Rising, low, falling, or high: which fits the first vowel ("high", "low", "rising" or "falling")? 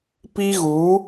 high